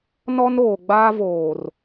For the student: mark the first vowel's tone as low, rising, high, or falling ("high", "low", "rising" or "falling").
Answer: high